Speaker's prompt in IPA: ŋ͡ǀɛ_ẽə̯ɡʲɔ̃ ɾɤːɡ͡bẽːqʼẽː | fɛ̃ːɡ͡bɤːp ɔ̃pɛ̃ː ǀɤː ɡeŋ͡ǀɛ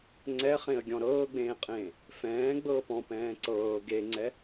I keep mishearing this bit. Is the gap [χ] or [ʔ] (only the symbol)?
χ